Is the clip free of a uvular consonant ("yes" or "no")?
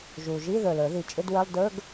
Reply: yes